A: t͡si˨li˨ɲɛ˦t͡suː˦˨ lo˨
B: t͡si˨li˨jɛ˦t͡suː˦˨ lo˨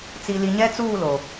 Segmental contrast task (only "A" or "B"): A